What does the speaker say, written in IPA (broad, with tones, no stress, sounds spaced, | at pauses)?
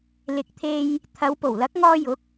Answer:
l ɪ˨ k̚ t̪ʰ e˧ j | t̪ʰ ɐ˨˧ w p o˨˩ w l ɐ˨˥ k̚ ŋ ɔː˧ j ʊ˨˥ k̚